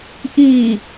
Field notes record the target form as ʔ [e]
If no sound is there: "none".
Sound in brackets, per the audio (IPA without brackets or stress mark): i